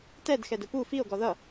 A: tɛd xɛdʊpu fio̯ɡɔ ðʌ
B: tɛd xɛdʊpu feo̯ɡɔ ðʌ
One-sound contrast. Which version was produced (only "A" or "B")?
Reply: A